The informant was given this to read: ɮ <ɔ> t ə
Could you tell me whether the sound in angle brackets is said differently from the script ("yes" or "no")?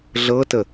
yes